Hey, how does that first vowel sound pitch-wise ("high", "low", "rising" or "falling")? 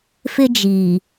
high